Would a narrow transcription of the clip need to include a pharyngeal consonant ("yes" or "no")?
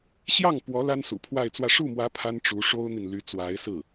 no